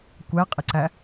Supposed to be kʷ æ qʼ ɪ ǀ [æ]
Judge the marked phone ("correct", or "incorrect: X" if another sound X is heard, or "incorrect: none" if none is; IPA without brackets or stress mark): correct